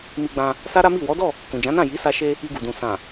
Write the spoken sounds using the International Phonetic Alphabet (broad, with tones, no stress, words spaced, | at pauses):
mi˧ɡ͡bã˧ | sa˦ɾa˦mi˦˨ wɔ˨˦dɔ˦˨ | kũ˨d͡ʒã˨˦nã˦˨ ji˨˦sa˧ʃe˧ | i˧ɡu˨dũ˨ sã˨